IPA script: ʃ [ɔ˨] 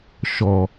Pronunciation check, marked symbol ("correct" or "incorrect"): correct